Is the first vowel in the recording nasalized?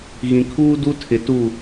yes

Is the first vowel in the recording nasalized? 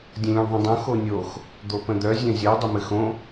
yes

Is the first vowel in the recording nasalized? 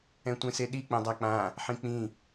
yes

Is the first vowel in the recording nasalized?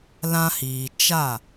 yes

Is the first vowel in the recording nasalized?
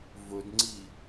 no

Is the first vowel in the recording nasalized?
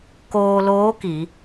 no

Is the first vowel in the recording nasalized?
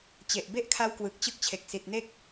no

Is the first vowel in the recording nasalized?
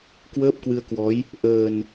no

